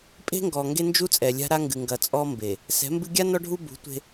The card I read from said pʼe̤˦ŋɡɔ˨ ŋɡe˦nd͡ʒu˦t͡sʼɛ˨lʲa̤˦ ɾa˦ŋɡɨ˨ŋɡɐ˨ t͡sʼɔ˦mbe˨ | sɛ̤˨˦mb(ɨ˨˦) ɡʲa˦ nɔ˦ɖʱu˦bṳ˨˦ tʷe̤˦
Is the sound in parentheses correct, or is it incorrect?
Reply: incorrect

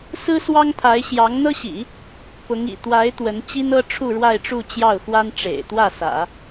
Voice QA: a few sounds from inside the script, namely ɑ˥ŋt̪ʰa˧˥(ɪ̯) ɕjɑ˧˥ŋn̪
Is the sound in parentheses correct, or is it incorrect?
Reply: correct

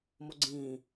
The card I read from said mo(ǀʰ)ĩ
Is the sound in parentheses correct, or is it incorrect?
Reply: incorrect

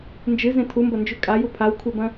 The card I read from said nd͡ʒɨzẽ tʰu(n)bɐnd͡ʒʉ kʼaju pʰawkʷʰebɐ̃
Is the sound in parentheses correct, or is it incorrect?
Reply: incorrect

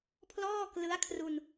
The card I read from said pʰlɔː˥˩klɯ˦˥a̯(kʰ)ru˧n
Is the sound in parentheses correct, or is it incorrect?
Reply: correct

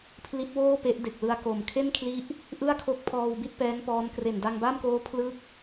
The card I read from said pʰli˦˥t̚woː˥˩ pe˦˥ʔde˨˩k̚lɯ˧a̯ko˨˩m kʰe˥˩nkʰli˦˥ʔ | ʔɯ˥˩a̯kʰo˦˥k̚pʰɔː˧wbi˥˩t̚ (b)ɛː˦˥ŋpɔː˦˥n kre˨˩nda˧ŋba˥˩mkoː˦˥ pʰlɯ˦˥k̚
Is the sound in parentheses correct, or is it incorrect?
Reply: incorrect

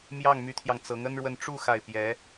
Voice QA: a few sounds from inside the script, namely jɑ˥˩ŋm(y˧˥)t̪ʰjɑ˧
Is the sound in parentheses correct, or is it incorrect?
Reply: correct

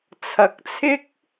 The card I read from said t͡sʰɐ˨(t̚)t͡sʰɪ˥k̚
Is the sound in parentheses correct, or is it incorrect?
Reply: incorrect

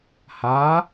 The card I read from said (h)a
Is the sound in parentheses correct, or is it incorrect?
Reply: correct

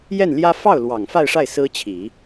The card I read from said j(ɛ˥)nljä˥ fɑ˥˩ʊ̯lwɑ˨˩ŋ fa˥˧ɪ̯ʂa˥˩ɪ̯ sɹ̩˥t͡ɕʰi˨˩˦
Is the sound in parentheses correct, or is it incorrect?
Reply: incorrect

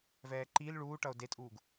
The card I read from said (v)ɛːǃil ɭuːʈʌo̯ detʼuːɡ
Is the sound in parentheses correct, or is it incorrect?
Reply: correct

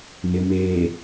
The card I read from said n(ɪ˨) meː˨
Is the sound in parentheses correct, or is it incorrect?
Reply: correct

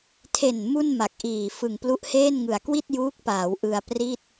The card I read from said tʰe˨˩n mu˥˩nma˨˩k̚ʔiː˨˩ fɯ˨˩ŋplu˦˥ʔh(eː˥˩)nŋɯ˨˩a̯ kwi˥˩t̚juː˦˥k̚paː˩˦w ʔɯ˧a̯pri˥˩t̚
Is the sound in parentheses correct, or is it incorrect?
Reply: correct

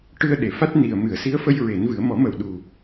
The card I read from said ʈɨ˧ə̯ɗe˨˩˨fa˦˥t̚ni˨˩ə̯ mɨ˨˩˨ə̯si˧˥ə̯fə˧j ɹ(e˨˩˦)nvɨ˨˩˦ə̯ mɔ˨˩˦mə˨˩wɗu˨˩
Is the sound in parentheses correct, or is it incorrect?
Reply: correct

